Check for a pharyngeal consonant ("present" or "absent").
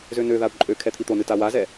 absent